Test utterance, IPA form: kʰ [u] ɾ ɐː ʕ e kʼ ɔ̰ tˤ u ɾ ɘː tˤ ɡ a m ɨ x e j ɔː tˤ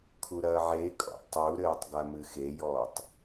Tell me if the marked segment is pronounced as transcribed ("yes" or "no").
yes